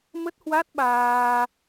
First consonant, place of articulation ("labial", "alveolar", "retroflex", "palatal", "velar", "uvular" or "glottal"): labial